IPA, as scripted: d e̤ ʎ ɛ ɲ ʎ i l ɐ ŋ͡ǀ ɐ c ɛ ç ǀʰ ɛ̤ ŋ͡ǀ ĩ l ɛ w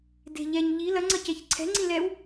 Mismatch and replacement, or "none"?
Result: none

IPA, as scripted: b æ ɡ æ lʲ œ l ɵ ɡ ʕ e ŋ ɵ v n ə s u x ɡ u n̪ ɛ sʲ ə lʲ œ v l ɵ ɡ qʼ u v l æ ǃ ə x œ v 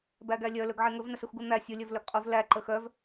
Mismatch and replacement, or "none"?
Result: ɛ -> æ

